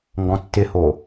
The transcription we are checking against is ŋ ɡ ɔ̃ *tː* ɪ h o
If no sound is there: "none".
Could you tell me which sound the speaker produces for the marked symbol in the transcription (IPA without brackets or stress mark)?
tː